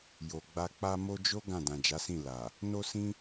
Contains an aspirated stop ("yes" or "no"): no